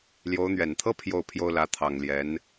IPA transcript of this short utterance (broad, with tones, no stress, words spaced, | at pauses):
ljo˧˥ʊ̯n̪ɥɛ˨˩n t̪ʰɤ˥ pʰjo˥˩ʊ̯pʰjo˥ʊ̯ lä˧˥t̪ʰɑ˨˩ŋljɛ˧˥n